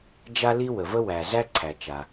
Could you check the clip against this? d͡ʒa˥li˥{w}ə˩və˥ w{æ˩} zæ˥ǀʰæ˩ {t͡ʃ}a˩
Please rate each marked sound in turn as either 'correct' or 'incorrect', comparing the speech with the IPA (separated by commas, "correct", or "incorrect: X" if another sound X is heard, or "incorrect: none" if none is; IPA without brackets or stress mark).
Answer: correct, correct, correct